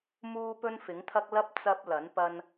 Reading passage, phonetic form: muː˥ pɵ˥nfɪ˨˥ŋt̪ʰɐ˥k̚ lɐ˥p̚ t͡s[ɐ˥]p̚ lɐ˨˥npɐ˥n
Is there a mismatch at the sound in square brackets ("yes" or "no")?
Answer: no